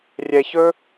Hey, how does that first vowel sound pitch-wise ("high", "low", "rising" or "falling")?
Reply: low